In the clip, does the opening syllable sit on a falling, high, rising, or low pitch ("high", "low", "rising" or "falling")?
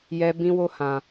high